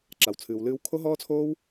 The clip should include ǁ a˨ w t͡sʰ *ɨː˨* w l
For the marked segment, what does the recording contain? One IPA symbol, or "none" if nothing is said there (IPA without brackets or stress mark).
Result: ɨː˨